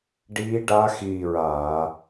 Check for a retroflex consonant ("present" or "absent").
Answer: present